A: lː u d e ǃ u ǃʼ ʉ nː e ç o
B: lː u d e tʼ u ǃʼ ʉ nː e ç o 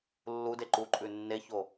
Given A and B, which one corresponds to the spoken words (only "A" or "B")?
A